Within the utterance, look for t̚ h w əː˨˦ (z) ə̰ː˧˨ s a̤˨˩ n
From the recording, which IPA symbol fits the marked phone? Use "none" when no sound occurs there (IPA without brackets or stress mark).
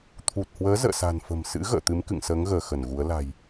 z